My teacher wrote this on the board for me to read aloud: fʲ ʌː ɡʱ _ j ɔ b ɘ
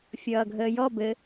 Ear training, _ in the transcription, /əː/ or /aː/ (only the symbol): əː